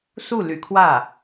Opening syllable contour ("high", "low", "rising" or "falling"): falling